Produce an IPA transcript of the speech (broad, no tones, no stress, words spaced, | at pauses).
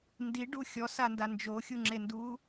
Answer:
ndiɖu xʲɔsanda nd͡ʒoxʲuŋ͡ǁenduː